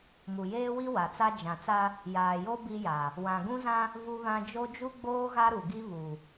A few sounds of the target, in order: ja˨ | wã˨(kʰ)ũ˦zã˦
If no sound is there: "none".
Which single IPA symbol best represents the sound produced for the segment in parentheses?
ɡ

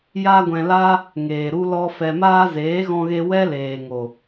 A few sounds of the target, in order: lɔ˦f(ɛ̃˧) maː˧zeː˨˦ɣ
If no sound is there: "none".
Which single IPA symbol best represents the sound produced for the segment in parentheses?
ɛ˧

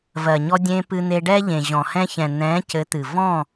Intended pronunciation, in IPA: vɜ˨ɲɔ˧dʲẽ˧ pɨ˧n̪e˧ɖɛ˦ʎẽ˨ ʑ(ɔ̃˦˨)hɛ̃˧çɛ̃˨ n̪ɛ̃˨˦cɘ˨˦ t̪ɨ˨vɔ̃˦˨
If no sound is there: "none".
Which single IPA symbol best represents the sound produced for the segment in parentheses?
ɔ̃˨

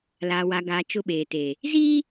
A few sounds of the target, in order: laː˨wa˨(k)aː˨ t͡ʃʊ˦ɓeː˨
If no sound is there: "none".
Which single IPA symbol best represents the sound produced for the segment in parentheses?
ɡ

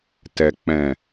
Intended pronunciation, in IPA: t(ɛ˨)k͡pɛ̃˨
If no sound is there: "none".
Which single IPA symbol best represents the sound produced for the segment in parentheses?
ɛ˨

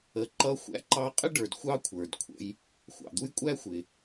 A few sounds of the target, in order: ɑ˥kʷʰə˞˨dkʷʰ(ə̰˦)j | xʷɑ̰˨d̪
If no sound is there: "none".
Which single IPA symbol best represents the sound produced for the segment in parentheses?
ə̰˦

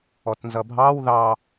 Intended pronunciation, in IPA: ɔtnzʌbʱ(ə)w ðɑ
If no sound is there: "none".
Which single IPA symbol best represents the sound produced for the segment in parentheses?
ɑ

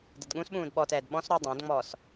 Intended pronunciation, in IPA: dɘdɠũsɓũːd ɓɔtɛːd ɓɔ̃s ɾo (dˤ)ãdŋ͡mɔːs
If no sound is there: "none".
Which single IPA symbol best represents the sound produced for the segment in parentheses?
dˤ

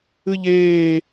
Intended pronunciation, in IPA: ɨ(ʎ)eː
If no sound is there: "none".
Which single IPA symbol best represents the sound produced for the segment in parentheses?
ʎ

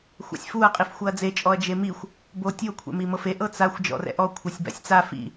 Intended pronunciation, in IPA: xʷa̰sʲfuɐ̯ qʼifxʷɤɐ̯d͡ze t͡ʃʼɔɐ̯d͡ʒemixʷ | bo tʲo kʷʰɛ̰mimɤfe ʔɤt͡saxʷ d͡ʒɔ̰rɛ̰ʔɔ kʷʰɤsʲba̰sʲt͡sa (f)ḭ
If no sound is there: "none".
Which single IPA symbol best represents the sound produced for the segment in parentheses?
f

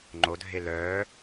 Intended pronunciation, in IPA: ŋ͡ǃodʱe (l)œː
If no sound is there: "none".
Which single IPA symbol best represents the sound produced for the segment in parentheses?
l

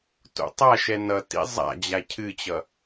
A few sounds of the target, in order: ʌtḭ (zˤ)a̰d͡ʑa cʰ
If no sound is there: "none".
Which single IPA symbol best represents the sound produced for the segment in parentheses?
zˤ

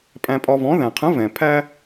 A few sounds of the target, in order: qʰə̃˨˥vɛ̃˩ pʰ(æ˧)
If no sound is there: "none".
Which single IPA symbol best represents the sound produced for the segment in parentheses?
æ˧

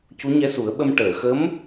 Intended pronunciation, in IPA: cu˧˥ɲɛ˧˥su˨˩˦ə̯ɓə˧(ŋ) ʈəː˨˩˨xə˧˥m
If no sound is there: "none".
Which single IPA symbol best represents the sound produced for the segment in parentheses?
m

